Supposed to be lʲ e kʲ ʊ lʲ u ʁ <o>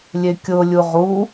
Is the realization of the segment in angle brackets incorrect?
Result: yes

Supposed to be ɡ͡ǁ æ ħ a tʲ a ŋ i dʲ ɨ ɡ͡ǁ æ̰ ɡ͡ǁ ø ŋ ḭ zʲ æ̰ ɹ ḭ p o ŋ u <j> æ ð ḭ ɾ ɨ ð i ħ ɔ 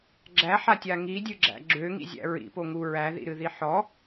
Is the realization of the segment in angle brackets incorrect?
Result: yes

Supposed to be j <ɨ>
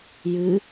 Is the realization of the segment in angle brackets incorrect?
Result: no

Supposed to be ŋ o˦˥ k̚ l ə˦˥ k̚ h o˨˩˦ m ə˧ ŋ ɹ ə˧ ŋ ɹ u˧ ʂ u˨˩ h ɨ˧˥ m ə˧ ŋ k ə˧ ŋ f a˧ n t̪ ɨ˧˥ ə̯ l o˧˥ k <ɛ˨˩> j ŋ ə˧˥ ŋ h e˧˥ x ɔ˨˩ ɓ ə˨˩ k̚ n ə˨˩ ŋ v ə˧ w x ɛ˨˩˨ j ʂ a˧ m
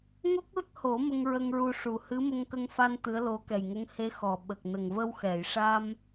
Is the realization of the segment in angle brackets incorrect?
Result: no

